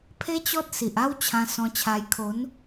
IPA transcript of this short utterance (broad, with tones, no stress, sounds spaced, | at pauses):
pʰ e˦ t͡ɕ ɔ˦ t̚ s i˨ ʔ a˦ w t͡ɕʰ ã˧ s ɔ̃˧ t͡ɕʰ a˧ j kʰ o˨˦ n